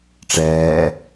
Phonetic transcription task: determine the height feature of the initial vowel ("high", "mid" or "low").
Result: mid